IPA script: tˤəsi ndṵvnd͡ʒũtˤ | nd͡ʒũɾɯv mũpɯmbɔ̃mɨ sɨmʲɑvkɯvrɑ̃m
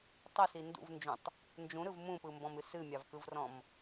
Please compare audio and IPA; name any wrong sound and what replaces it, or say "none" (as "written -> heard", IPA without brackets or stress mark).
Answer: ɑ̃ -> ɔ̃